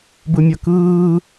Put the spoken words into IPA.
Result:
b ɯ mʲ ʌ k ɯː

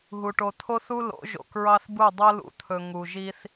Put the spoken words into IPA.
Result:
ɦ u˨ ʈ o˨ t̪ʰ o˦ θ u˦ l o̰˨˦ ʒ o̰˨ k ɹ ɑ˦ θ b u˦˨ dˤ o˦ l ṵ˨ t̪ʰ ɵ˨ ŋ u˨ ʒ i˦ θ

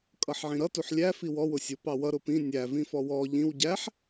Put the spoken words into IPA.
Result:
kʼ ʌ ħ ʕ ĩ ɾ ʌ t u ħ lʲ æ f i w ɔ w ʊ sʲ ʊ p ɑ w ʌ ɾ ʊ p ĩ nʲ æ v ĩ f ɔ w ɔ ʎ ĩ w ɟ æ ħ

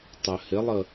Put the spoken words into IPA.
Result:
tˤ œ h ɪ lˠ ə

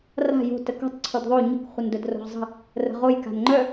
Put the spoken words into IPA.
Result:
r a̤ j o̤ t ə k o̤ tˤ ǀʰ o d ðˤ o ɲ ə̤ k χʷ ə n d œ d r o̤ ʁ zˤ ə̤ | r ə̤ ʁ o j k a̤ n ŋ͡ǃ œ

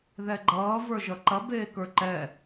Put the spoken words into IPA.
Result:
ð ɛ ɡ͡ǃ ʌː v ə˞ ʒ ʌ ǃ ɐ b eː k ə˞ ǃ ɛ

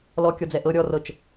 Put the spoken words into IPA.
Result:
l ɔ kʲ ɔ d͡z ɛ ʔ ɤ ɾʲ ɔ r ɤ t͡ʃ

